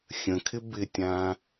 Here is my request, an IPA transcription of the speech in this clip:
xʲ ə̃ kʰ ɪ b ɪ tʲ ã

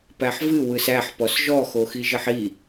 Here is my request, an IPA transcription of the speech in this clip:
p æ ħ v ɨ w ɯ s æ ħ p ɔ s ʒ ɔ x o x i ʒ ɘ ħ i

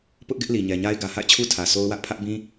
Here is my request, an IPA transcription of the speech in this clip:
p ʊ˦ ʔ ɡ ɪ˦ ʔ l i˨ ɲ ɛ˨ ɲ a˦ ɪ̯ ɡ ä˨ h a̰˦˨ ɪ̯ t͡ɕʰ u˦ tʰ ä˨ s o˦ ʊ̯ w ä˦ ʔ pʰ ä˦ ʔ b ĩ˦

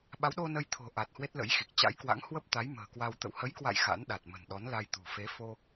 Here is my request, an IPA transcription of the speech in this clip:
ɓ a˨˦ w ɗ o˧ n ə˧ j t̪ʰ o̤˨˩ ʔ a˨˩ t̚ h w e˦˥ t̚ l ə̰˧˥ j x i˨˩ k̚ t͡ɕ a̰˧˥ j k w a̰˧˥ ŋ h w ə˦˥ p̚ t̪ a˨˦ j m ə̤ː˨˩ k w a˧ w t̪ ə̰˧˨ w h ə˨˦ j k w a̰˧˨ j x a̰˧˥ n ɗ a˨˩ t̚ m ə̤˨˩ n ɗ ɔ˨˦ n l a˧ j t̪ ṳ˨˩ f e˨˦ f o˧

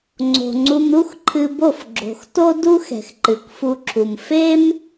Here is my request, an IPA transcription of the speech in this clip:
ŋ͡ǀ o̤˨ ŋ͡ǀ u˧ m ɾ u˦ x ǃʰ ɨ˧ b o˦˨ f ɡ͡ǁ o̤˨ x t o˦ d u˦ x ɛ̤˨ x ǃ ɨ˨ kʷ f u˧ ǁʰ u˨ m f e˦ m

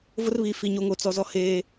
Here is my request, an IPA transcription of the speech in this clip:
v ʊ˦ r β i˨ f i˨ ɲ o˦ ŋ o˦ t͡s ɔ˦ z ɔ˦ h eː˦

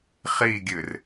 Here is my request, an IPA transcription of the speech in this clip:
χ i ɡʲ ɨ r

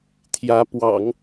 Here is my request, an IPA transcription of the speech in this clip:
t̪ʰ j ä˧˥ p w ɑ̰˨˩˦ ŋ

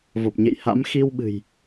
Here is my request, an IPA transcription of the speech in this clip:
v o˨˩ p̚ ɲ ḛ˧˨ j h a̰˧˥ m x i˧ w ɓ ɨ̤˨˩ j

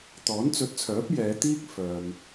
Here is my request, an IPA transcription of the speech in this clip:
t̪ ɔː˨˥ n t͡s ɵ˨˥ t̚ t͡sʰ œː˨˥ p̚ j ɛː˨˧ t̪ iː˥ k̚ f œː˨ m

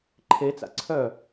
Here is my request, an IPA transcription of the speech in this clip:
ǃʰ e t͡s a̰ ǀʰ œ

